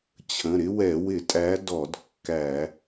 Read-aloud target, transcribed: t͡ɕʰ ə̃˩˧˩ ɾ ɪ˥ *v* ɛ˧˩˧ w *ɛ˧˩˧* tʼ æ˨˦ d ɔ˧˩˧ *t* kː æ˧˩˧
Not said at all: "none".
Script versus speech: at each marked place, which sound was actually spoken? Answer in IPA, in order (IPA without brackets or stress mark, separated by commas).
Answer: w, ɪ˧˩˧, d